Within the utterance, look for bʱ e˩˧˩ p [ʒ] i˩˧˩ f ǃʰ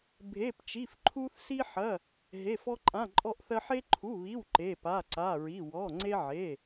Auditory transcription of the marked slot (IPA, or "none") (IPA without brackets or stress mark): t͡ʃ